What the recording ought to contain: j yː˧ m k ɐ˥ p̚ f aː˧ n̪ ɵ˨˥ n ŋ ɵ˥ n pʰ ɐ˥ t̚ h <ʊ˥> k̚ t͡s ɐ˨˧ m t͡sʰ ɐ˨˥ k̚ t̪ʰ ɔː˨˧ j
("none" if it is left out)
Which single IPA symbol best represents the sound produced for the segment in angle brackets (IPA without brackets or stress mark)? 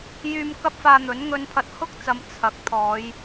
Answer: ʊ˥